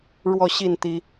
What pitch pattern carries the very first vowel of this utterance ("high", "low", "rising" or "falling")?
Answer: falling